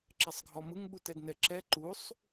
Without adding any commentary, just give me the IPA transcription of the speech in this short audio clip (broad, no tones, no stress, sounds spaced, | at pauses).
ǁ ɛ sˤ ɡʱ ɔ m ɯ ŋ ɓ u t ɛ d n ɛ ǁ ɛ ǃ u sˤ